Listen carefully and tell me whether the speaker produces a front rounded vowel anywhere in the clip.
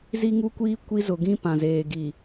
no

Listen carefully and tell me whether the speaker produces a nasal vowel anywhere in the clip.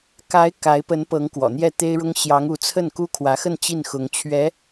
no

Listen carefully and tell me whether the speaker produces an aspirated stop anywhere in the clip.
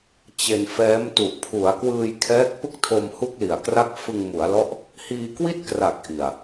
yes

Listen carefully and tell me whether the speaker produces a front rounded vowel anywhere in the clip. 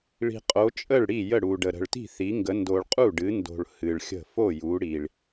no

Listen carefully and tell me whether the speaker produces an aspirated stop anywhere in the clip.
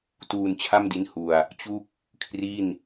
yes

